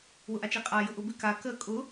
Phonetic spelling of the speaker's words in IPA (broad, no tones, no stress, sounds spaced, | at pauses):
w ʊ ʔ a t͡ʃ i qʼ a j ʊ ʔ ʊ b ɪ k a k ə kʼ ʊ